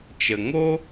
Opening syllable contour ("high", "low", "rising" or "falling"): low